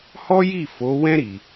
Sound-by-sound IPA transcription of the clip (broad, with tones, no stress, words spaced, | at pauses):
hɔ˦ji˦˨ fo˨˦wɛ̃˦ ɾi˧